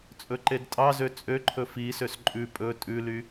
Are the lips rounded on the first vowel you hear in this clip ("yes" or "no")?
yes